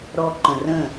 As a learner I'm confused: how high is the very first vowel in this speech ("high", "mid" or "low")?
mid